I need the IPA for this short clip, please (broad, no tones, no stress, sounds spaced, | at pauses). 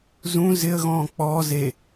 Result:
z ũ z ɪ ə̯ ɣ ɔ̃ː k͡p ɔː z e